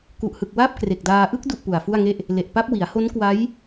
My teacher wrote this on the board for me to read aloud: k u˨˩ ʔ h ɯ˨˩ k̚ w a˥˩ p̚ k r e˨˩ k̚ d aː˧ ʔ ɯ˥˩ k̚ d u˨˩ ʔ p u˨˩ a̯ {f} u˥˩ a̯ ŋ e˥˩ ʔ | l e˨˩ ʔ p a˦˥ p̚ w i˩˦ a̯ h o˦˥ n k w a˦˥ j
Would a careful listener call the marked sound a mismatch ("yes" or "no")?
no